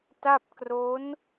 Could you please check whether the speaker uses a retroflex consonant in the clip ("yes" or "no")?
no